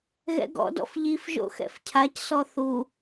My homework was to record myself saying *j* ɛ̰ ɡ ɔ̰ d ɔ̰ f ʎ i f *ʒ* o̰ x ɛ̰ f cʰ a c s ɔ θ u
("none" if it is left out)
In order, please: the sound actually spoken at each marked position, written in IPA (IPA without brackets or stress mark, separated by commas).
ɣ, ʒ